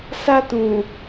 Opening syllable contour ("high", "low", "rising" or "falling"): high